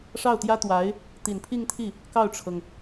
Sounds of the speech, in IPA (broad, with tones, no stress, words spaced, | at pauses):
ʂɑ˥˩ʊ̯t̪jä˥t̪wa˧˥ɪ̯ | t̪i˨˩npʰi˥˧ŋt̪ʰi˥˩ | kɑ˥˩ʊ̯ʈ͡ʂʰɤ˩ŋ